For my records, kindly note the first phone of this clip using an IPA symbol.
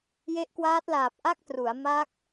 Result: j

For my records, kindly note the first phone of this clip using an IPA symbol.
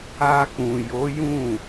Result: a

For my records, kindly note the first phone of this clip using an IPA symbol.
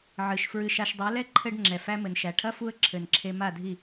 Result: ʕ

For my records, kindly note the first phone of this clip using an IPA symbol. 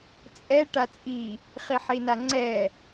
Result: t͡sʼ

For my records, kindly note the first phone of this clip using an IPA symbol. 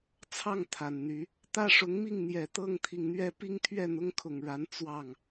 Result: t͡sʰ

